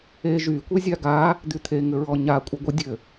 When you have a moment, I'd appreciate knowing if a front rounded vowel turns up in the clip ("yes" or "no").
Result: yes